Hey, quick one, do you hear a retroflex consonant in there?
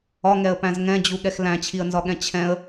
no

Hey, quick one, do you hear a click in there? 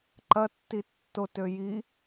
yes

